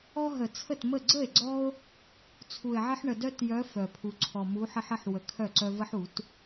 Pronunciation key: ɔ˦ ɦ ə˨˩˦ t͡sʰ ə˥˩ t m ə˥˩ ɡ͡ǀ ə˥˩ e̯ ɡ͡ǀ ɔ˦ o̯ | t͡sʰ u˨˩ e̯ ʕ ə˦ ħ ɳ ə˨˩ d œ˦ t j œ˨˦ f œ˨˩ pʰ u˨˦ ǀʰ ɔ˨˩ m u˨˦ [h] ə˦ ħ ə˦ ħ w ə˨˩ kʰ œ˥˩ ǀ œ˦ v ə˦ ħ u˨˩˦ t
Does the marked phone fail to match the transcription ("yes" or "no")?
yes